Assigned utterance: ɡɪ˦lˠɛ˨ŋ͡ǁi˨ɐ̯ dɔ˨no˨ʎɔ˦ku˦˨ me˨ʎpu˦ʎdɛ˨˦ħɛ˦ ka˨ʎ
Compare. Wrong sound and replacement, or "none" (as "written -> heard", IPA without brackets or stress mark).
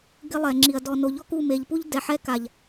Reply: none